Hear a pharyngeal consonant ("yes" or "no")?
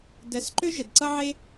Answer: yes